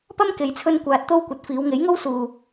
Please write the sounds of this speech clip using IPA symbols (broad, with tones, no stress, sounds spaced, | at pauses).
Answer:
p ɐ˥ m k e˧ j t͡sʰ ɵ˥ n kʷ aː˧ t̚ t̪ o˥ w kʷ ɐ˨˥ t̚ f iː˨˧ w ŋ e˨˥ j ŋ o˥ w s uː˨